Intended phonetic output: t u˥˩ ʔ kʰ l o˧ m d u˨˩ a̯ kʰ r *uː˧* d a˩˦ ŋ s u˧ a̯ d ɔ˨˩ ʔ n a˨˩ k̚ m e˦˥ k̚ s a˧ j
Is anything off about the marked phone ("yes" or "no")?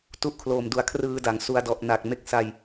yes